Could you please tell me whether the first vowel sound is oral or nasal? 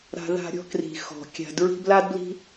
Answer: oral